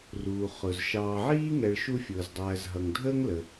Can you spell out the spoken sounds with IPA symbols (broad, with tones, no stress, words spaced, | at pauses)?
ruː˩ χʊ˩z ʃɑː˨ʕiː˦ŋɛ˨ɭ ʃu˦fʲʊː˩zdˤæː˨zɦʌ˩ŋ dʱəː˦ŋlə˩